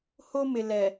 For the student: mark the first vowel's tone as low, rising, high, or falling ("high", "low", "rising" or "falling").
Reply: high